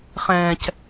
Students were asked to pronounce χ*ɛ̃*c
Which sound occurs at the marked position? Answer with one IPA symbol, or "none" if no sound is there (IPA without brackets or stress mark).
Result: ɛ̃